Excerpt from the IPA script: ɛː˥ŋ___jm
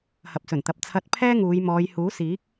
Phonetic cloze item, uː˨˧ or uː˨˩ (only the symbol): uː˨˧